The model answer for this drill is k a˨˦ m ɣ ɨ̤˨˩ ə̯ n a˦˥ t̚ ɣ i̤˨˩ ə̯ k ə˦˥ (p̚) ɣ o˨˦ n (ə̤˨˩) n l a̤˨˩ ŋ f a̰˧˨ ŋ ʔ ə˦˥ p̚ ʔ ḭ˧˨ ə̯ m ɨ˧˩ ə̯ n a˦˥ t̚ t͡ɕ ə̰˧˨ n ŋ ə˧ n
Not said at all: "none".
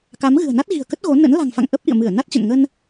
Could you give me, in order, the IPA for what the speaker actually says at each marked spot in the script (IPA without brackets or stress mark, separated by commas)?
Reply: t̚, ə̰˧˥